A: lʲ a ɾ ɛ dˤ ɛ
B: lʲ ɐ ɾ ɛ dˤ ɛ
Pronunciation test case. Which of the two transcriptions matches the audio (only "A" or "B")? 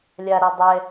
A